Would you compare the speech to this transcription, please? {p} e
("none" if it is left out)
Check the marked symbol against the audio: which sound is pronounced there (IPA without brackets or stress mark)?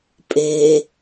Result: pʼ